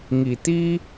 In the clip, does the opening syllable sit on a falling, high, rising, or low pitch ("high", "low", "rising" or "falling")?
low